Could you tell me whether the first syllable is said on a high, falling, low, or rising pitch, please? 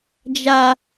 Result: low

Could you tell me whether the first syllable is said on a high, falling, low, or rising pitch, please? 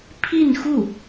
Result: falling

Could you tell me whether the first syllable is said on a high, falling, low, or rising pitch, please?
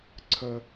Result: high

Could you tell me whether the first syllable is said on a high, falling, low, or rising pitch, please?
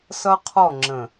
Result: high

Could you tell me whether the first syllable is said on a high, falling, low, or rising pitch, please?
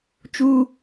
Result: high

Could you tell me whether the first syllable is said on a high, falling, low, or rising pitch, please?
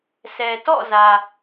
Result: low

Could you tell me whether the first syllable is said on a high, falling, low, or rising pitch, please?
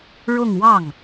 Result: falling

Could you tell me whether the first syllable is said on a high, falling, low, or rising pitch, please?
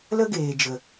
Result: high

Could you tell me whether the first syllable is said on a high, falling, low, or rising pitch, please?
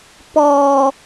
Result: low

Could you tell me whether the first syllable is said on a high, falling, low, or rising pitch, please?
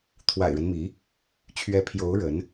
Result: low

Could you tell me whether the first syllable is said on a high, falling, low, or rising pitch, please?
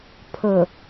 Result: low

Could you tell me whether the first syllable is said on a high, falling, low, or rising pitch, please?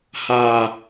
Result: low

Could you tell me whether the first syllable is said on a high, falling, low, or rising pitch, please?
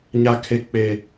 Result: high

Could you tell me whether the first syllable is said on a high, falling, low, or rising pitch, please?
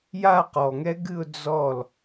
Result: falling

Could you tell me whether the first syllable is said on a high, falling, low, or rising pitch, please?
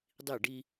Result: falling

